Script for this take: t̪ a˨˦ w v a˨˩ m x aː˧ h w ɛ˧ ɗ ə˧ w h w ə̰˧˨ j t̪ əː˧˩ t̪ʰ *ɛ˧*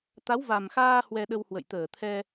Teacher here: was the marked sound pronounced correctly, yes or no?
yes